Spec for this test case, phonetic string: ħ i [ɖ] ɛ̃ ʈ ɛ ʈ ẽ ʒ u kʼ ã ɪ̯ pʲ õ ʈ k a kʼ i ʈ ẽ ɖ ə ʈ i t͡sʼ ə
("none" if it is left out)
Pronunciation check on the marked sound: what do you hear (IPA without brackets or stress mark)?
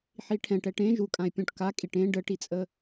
ʈʰ